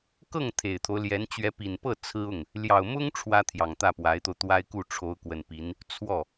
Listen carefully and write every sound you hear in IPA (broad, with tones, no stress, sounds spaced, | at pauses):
k ɤ˥˩ ŋ t̪ʰ e˨˩ ɪ̯ t̪ʰ o˦ ʊ̯ l j ɛ˧˥ n t͡ɕ ɥ ɛ˧˥ p i˨˩ n p ɤ˥˩ t͡sʰ ɹ̩˥ ʊ˥˩ ŋ | l j ɑ˨˩ ʊ̯ m ʊ˥ ŋ ʈ͡ʂʰ w ä˥ t̪ʰ j ɑ˨˩ ŋ t̪ ä˥˩ p w a˧˥ ɪ̯ t̪ o˧ ʊ̯ t̪ w a˥ ɪ̯ k u˥˩ ʈ͡ʂʰ o˧˥ ʊ̯ k w ə˨˩ n p i˧˥ n | t͡sʰ w ɔ˥˩